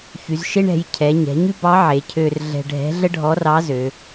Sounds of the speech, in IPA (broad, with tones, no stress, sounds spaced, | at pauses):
ç y˩˧ z ʃ e˥ ɳ ɛ̤˩˧ j cʰ ɛ˩˧ ɲ ɛ̤˩˧ ɲ ʉ˥ b ɑ˧˥ ʕ e˩˧ cʰ ø˧ r ɮ ɛ̤˧ ɖʱ ɛ̤˧˥ ɮ ə˥ ɖʱ ɔ˧˥ r ɑ˧˥ z ø˩˧